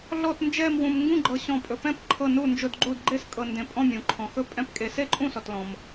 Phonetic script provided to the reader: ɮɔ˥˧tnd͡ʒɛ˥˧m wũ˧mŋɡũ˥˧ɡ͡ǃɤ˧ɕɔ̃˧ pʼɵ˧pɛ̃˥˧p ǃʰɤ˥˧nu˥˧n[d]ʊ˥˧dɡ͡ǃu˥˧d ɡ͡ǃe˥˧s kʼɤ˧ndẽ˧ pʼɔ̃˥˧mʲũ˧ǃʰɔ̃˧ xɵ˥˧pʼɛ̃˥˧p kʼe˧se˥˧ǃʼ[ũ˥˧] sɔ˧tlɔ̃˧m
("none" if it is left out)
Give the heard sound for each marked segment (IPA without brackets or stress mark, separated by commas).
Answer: d͡ʒ, ũ˥˧